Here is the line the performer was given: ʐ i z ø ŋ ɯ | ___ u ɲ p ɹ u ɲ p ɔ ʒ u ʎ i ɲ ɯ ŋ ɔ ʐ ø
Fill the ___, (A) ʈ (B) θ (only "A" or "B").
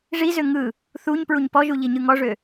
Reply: B